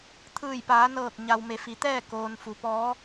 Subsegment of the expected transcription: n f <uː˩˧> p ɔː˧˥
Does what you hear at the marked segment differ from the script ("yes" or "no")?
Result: yes